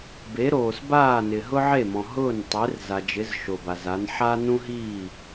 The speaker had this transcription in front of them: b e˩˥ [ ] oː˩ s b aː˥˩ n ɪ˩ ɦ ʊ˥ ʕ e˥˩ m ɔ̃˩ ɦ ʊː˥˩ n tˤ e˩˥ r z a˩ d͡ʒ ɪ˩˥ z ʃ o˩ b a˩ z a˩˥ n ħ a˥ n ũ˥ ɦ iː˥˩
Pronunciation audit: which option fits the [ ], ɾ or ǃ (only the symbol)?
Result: ɾ